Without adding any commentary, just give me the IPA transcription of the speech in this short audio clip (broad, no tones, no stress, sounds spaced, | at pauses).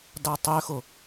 d ɑ tˤ ø x o